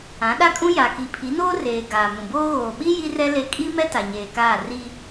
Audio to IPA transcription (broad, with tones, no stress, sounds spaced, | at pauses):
ã˨˦ ɗ a˦ kʼ ũ˦ j a˨ k i˨ pʰ i˨˦ n oː˦ r eː˨ ɡ aː˨ m ũ˨ b oː˦ ɣ oː˨ ɓ i˦ j i˦ r ɛ˦ l e˦ kʼ i˦ m ɛ˦ t a˨ ɲ eː˨ k aː˦˨ r i˦